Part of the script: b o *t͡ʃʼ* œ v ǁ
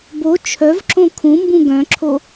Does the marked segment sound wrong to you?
yes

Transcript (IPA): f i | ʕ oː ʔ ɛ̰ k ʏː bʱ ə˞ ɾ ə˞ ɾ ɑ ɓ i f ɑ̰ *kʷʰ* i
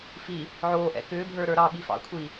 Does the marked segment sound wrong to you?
no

